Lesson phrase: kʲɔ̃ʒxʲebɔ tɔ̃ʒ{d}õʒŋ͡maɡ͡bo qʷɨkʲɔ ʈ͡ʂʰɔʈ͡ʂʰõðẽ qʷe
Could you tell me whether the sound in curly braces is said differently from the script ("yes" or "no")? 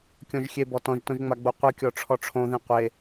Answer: yes